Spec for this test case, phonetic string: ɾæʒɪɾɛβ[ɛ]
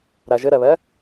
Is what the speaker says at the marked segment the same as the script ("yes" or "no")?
yes